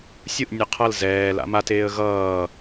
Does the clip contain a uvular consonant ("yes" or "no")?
yes